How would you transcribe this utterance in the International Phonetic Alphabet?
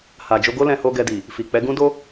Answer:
h a˨ d͡ʒ o˧ ɡ o˦ l ɛ̃˧ h o˧ ɡ ɛ˧ d i˨ | f i˨ k͡p ɛ˨˦ ɡ ũ˦ d o˦

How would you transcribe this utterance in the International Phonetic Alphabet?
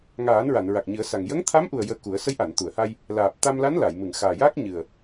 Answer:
ŋ aː˨˩˦ n ɹ a˨˩˨ n ɹ a˨˩ k̚ ɲ ɨ˨˩˦ ə̯ s a˨˩ ŋ j ə˧˥ ŋ t̪ʰ a˧˥ m ʔ u˨˩ ə̯ j əː˧ k u˨˩˦ ə̯ s ə˧˥ j ʔ a˨˩˨ n t̪ u˨˩˨ ə̯ h a˧ j | l aː˨˩ p̚ t̪ a˧ m l a˧˥ n l a˨˩˨ j m ɨ˨˩˨ ŋ x aː˨˩ j aː˦˥ k̚ ɲ ɨ˨˩ ə̯

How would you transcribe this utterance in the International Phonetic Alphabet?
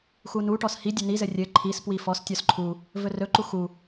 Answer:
x u n u ʈ ɔ s h i dʲ ɵ n i z ɘ rʲ ɘ ǃʰ i s p w i f ɔ s tʲ ɔ s ǃʰ u | v ɵ r ɵ ǃ u x u

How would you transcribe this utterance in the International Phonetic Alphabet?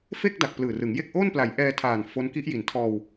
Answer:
f e˥˩ k̚ d a˨˩ k̚ p l ɯː˨˩ r ɯ˩˦ ŋ j e˥˩ k̚ ʔ o˥˩ n p l a˩˦ j ʔ ɛː˧ tʰ aː˨˩ n f o˦˥ n k i˦˥ ʔ j i˩˦ n tʰ ɔː˧ w

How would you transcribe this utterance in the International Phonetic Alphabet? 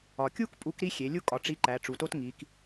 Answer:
ɒ˩ kʲ u˥ k pʼ u˧˥ k ɾ i˥ xʲ e˩˧ lʲ u˥ kʼ ɒ˩ ʈ͡ʂ i˧ ǃ æ˩˧ ʈ͡ʂ u˩ t o˥ t ŋ i˩˧ k

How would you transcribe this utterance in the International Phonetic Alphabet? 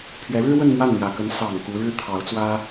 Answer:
pʰ ɥ ɛ˧˥ ɻ ɻ̩˥ w ə˥˧ n m w a˥˩ n n̪ j ä˨˩ k ə˧˥ n s ɑ˨˩ ŋ k u˧˥ ɻ ɻ̩˥ t̪ʰ ɑ˧˥ ʊ̯ t͡s w ä˥

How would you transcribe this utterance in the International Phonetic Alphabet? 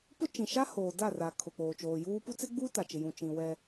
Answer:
p ʊ˦ t͡ʃ ĩ˨ ʃ a˦ h oː˨ d a˦˨ r a˨ kʰ ʊ˨ k͡p oː˨ t͡ʃ oː˨ j uː˦ p u˦ t͡s ɪ˦ ɡ͡b u˦ t a˨ t͡ʃ ɪ˨ j ũ˨ t͡ʃ ĩ˨ w ɛ˦

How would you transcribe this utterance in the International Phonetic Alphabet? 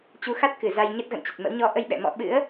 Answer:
t͡ɕ u˨˦ x a˦˥ t̚ k ɨ˧˩ z a˧ j ɲ ə˦˥ t̚ ɣ ə̰˧˨ n t͡ɕ ə˨˩ t̚ m ə̰˧˥ w ɲ ɔ˧ ʔ ə˧ j ɓ ɛ̰˧˨ m ɔ̰˧˨ ɓ ɨ̰˧˥ ə̯

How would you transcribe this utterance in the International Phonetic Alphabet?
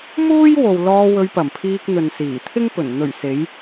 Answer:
m uː˥ j w o˨ w l ɔː˧ w ɵ˧ ɥ p ɐ˨˩ m pʰ iː˧ k̚ n̪ ɵ˨ n s iː˨˩ t̪ʰ ɪ˥ ŋ p ɵ˨˩ n n̪ ɵ˨˩ ɥ s e˨˧ j

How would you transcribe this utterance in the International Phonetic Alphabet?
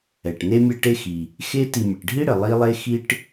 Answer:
ɛ˩ ʈ n e˦ mʲ ɛ˦ ʈ e˦ x i˩ | x e˦ t i˨ mʲ ɘ˩ ʈ ɖʱ i˥ ɽ ɘ˩ lˠ i˦ lˠ e˦ x i˦ ʈ

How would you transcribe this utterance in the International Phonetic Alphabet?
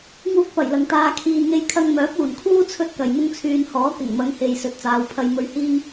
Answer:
ŋ uː˥ k̚ p ɐ˨˩ j l ɐ˨ ŋ t̪ aː˧ kʰ iː˧ ŋ e˥ j kʰ ɐ˧ ŋ m œː˨˥ p̚ uː˨˩ n kʰ uː˥ t͡sʰ ɵ˥ t̚ k ɐ˨ j m ʊ˥ ŋ t͡sʰ yː˧ n h ɔː˨˥ k ɪ˨˩ ŋ m ɐ˨˧ ŋ h e˨ j s ɵ˨ t̚ t͡s aː˨˧ w pʰ ɐ˧ j m ɵ˧ ɥ h iː˥ ŋ

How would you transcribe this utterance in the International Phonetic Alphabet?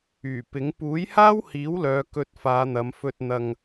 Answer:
yː˨˩ p ɪ˨˥ ŋ p uː˨˥ j h aː˥ w h iː˨˥ w l œː˨˧ k ɵ˧ t̚ f aː˨˧ n̪ ɐ˨˧ m f ɵ˧ t̚ n̪ ɐ˧ ŋ

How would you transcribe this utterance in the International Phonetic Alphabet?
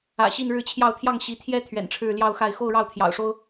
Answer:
ä̰˨˩ ɕ i˥˧ n ɻ ɻ̩˥˧ t͡ɕʰ j ɑ˥˧ ʊ̯ t̪ʰ j ɑ˥˩ ŋ ɕ i˧˥ t̪ʰ j ɛ˥ t̪ʰ ɥ ɛ̰˨˩ n ʈ͡ʂʰ ɻ̩˥˧ l j ɑ˥˧ ʊ̯ x a˥˧ ɪ̯ x o˥˧ ʊ̯ ɻ ɑ˥˩ ʊ̯ t̪ʰ j ɑ̰˨˩ ʊ̯ ʂ o˥ ʊ̯

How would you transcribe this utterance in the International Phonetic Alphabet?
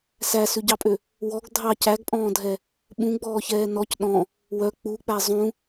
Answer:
s æ s ʉ ɟ ɑ pʼ ø | w ɔ ɡ dʱ ɑ c æ ɡ pʼ ɔ̃ː dʱ ɛ | ɓ ũ ɡ͡b ɔː ç ɛː n ɔ c ɗ ɔ̃ | w œ k͡p u k͡p æ zˤ ũ

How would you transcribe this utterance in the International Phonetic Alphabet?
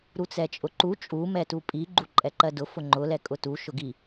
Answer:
ɾ u t͡s ɛ t͡ʃʼ ʊ ǃ u t͡ʃʼ u m ɛ t u pʼ i ɡ͡ǃ u ǃʼ ɛ ǃ ɜ d ʊ f ʊ ŋ͡ǃ ʊ l ɛ kʼ ʊ t u ʃ ʊ ɡ i

